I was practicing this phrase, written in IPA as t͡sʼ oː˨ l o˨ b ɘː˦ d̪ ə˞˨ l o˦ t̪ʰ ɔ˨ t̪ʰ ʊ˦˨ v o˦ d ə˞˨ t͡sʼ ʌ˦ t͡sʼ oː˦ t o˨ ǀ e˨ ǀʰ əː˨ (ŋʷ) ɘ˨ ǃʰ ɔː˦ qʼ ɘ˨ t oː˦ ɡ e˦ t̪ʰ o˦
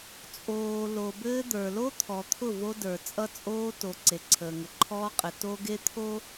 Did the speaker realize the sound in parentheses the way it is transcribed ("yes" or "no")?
no